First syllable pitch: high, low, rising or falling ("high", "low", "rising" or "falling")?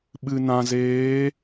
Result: low